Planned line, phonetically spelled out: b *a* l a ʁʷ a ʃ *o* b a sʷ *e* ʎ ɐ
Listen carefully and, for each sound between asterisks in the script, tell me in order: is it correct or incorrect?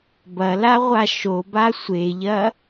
incorrect: ɐ, correct, correct

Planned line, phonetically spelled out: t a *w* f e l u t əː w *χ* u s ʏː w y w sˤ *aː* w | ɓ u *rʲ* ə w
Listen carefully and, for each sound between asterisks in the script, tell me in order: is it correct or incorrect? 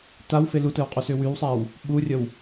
correct, incorrect: qʼ, correct, correct

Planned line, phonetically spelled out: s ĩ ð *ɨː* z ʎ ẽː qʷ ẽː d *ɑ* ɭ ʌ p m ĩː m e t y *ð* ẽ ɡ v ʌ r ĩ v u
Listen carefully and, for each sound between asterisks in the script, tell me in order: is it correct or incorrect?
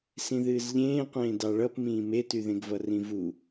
correct, correct, correct

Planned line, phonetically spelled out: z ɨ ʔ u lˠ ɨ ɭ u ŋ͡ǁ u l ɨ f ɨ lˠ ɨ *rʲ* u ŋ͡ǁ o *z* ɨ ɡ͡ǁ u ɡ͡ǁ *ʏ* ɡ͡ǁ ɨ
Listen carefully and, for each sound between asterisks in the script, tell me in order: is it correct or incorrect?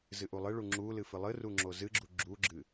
incorrect: r, correct, incorrect: u

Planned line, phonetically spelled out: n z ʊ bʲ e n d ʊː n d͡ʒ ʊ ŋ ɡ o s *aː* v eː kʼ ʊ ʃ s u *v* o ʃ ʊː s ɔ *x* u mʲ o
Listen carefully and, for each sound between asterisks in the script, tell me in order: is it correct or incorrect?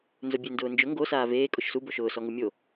correct, incorrect: b, incorrect: ŋ

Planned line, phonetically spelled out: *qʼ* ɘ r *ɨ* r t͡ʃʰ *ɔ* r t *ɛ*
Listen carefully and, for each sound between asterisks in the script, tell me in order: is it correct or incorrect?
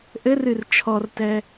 incorrect: ʔ, correct, correct, correct

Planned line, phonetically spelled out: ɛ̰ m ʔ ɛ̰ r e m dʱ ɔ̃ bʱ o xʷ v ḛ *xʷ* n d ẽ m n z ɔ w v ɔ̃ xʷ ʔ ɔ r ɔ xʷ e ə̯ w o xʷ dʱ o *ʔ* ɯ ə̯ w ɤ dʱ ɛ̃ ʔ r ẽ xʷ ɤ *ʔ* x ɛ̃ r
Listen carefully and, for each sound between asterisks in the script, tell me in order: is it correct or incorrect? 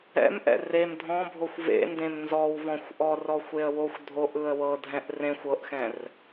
incorrect: none, correct, correct

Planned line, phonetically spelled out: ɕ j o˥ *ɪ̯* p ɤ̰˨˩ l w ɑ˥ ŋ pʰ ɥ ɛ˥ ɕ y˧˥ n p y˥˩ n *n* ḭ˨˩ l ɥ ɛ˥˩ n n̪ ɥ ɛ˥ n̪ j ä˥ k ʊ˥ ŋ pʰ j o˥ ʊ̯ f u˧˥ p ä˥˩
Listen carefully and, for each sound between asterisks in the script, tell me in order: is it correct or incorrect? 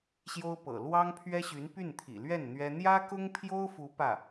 incorrect: ʊ̯, incorrect: t̪ʰ

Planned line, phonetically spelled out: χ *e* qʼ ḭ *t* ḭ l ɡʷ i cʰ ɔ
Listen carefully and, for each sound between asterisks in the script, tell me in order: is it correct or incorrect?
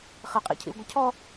correct, incorrect: cʰ

